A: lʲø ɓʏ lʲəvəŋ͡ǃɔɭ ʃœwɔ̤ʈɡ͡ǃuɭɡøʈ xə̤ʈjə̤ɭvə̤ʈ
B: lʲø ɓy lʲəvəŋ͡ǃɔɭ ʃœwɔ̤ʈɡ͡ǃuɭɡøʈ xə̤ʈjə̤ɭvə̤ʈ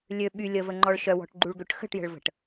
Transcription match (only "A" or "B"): B